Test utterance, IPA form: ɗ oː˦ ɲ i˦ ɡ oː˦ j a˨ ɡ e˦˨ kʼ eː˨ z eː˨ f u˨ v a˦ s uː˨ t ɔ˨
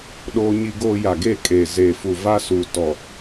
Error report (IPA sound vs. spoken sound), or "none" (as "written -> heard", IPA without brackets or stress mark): none